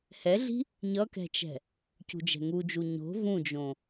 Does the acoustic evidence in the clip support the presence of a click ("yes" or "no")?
no